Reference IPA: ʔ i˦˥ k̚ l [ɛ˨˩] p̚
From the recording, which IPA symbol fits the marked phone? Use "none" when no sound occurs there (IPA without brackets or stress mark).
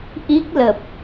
ə˨˩